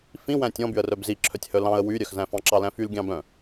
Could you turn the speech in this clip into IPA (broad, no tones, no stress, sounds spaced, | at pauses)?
f ĩ w æ̃ tʲ ɔ̃ b y ə̯ r œ b z i ǁʰ œ tʲ h œ l ɑ̃ ə̯ w y ɾʲ œ x z æ̃ f ɑ̃ ǁ ɑ l æ̃ f y l ɡʲ ɑ̃ b œ̃